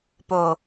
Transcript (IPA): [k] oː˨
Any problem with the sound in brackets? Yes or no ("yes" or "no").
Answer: yes